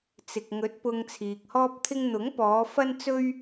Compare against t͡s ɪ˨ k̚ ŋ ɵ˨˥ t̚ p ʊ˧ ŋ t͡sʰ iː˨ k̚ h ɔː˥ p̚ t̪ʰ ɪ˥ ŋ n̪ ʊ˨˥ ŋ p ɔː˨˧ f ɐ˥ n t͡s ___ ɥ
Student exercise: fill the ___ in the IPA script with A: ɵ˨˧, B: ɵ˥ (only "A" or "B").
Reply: B